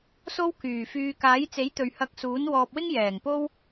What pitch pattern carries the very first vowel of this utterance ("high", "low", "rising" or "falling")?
high